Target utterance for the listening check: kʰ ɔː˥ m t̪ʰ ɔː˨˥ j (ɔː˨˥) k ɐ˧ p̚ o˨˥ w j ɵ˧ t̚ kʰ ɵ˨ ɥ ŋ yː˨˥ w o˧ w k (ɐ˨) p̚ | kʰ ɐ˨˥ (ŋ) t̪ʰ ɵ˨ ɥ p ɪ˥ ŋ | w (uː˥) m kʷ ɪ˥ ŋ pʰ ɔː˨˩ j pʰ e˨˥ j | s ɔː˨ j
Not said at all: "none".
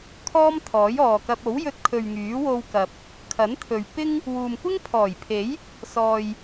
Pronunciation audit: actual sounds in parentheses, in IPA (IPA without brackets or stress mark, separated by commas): ɔː˨, ɐ˨, n, uː˨